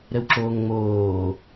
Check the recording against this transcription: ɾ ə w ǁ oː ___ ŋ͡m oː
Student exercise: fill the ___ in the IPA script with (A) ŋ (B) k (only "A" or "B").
A